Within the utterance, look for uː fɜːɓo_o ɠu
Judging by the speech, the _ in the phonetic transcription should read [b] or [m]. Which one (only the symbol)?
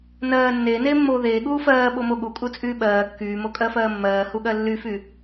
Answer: m